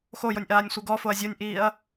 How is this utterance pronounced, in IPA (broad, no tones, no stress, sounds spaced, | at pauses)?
x o j o nʲ ʔ aː nʲ sʷ ɯ ɡ ɔ f o ɐ̯ zʲ o nʲ ʔ iː ɐ̯